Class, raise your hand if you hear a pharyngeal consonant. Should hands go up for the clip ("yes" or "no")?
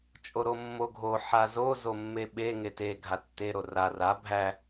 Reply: yes